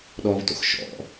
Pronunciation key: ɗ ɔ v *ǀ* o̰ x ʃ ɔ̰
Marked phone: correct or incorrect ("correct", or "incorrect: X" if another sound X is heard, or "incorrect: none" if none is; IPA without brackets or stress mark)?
incorrect: t